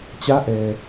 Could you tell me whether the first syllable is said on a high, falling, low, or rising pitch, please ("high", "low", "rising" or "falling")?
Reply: rising